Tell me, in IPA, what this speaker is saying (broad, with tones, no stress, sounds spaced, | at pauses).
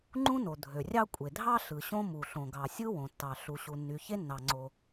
ŋ͡ǃ ũ˥ n o˩ dʱ ø˩ rʲ ɑ˥ kʷʼ e˩ dʱ ɑ˥ ɬ ɯ˩ ɕ õ˥ m u˩ ɬ õ˩ ɡ ɑ˩ sʲ ɯ˥ w õ˩ tː ɑ˩ ɬ u˩ ɕ u˩ nː y˩ ç e˥ nː ɑ˩ ŋ͡ǀ o˩